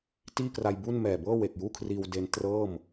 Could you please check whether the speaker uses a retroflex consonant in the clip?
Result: no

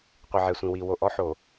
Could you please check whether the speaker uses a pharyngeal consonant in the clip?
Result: yes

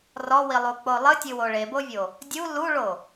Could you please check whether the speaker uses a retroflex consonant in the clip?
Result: yes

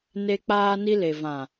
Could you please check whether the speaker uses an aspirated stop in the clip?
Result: no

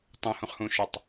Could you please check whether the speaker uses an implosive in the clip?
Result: no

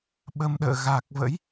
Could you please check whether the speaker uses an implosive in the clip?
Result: yes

